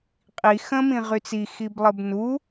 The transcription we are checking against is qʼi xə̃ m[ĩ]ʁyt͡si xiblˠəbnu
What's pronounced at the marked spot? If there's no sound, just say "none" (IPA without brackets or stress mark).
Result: ĩ